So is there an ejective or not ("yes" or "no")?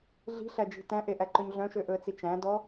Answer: no